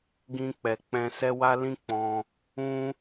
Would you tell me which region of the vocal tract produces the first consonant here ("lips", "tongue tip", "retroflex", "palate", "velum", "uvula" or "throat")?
velum